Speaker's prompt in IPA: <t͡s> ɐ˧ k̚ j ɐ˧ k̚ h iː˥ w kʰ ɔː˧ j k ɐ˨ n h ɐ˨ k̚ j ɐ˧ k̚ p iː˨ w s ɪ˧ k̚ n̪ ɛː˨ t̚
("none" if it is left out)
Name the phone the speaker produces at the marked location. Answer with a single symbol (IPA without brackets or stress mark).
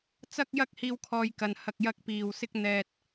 t͡s